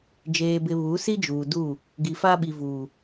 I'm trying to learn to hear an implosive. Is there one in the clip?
yes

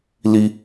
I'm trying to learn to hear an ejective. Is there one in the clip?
no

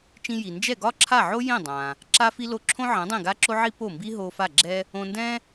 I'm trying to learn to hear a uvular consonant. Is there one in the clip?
no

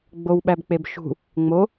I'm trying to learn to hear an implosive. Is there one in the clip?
yes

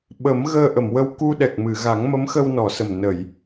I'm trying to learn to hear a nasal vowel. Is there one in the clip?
no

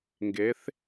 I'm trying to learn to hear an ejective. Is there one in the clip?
no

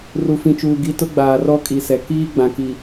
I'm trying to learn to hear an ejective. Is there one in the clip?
yes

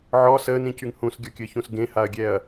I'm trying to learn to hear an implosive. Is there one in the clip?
no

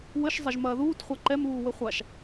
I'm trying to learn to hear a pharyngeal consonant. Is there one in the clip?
no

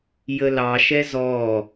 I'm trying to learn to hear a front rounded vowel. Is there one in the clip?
no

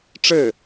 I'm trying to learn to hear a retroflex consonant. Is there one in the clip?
yes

